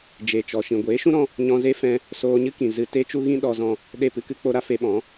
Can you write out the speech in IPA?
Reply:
d͡ʒe˨t͡ʃɔ˨ ʃĩ˨ɡʷeː˨˦ʃũ˦ɾɔ̃˧ | ɲɔ̃˧ze˦fɛ̃˧ | soː˧ɲɨ˦kĩ˨ zɨ˧ te˦t͡ʃu˦ɣĩ˦ ɗɔ˧zɔ̃˧ | ɗe˦˨pɨ˦kɨ˦k͡po˦ ɾa˦fe˧ɓɔ̃˨˦

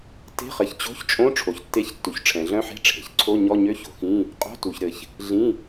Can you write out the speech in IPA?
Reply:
te̤˧˥˧χɘ˨çt͡ɕo̤˧˥˧çt͡ʃʼõ˧˥˧ ʈ͡ʂʰo˨çtːe˧˥˧çtːu˨ç ʈ͡ʂʰɛ̃˨ɮœ̃˧˥˧ħe̤˧˥˧ ʈ͡ʂʰe̤˨çǀʰo˧˥˧ ɲɔ˧˥˧ɲø˧˥˧ ço̤˨xĩ˧˥˧ | qʼo̤˧˥˧tu˨ç ɾɘ˨ç | ɮĩ˧˥˧

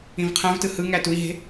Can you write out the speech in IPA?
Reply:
ĩvqʰæ̃vtɯ hɯŋæ tui̯ɦe̤

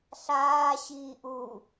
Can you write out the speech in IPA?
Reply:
ɬaː ɕiːʔu

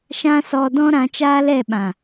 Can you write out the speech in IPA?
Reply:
ʃã˦sɔ˧dɔ̃˦ ɾã˨˦t͡ʃaː˦lɛ˦˨ɓã˨

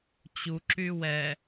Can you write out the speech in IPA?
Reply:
t͡ɕuǁy wɛ

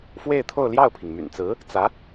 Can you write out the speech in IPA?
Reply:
fwe˥˧ɪ̯t̪ʰo˥˧ʊ̯ljɑ˥˩ʊ̯pʰi˩ŋ my̰˨˩nt͡sɹ̩˧˥ | t͡sä˧˥

